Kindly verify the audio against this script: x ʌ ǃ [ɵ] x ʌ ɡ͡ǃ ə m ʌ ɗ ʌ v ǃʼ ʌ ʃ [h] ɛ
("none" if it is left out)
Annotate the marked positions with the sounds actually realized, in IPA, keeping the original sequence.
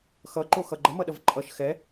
o, x

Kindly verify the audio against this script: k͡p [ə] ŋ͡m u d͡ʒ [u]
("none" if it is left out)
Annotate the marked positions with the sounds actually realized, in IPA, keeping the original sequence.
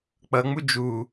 ʌ, u

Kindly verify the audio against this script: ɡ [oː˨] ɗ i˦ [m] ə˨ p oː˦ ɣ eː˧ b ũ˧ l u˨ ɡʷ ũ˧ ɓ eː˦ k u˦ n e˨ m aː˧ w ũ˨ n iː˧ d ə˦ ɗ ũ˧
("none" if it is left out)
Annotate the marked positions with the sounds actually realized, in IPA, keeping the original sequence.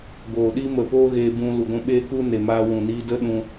oː˨, m

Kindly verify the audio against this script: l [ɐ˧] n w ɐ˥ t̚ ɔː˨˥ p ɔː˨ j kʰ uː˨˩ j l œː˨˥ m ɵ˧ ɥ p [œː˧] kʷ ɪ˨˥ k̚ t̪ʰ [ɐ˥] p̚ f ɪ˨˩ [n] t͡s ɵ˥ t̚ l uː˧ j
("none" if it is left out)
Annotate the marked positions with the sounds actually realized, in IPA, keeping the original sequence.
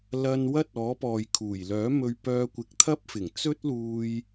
ɐ˧, œː˧, ɐ˥, ŋ

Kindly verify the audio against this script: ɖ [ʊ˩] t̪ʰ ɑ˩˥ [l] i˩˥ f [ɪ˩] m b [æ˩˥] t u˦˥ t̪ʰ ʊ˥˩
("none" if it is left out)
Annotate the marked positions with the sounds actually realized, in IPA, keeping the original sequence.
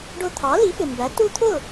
ʊ˧, l, ɪ˩, æ˩˥

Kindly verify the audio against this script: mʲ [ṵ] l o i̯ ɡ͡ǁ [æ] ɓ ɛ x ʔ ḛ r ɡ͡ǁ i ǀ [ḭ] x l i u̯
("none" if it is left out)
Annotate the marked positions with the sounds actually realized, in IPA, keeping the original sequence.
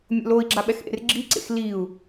o̰, a, ḛ

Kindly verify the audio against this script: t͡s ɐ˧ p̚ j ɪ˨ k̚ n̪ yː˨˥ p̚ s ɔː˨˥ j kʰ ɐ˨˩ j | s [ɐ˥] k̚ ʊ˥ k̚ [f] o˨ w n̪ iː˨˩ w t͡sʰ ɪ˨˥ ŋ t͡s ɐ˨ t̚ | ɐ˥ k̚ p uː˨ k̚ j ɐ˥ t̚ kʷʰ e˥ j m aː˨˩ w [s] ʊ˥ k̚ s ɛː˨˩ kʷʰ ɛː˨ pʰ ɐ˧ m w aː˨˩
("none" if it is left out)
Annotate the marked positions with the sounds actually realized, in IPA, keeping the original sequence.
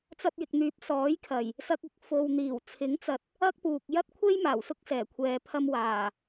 ɐ˥, f, s

